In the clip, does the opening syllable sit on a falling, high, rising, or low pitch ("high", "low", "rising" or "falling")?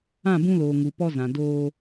falling